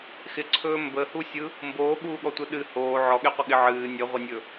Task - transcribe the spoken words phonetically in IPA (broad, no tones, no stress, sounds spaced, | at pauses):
x ɪ ǀʰ ɵː m b ə h u sʲ ɯ | m b oː ɠ uː ɠ ɔ tʷ ɯ ɗ ɨ h oː ʕ ɔ ɠ e qʷ ə ɠ ɪ ʕ ɨː nʲ ə ʁʷ ɪ nʲ ɵ